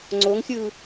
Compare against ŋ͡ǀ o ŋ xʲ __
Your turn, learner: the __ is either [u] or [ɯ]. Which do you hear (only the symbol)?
ɯ